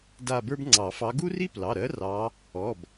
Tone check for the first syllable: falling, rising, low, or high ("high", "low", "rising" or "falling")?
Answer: falling